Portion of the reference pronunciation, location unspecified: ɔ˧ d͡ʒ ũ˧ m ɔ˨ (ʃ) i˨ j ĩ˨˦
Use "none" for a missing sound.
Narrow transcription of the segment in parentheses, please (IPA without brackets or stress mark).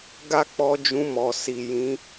s